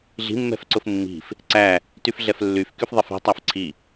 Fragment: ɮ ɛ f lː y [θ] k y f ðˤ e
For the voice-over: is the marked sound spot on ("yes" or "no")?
no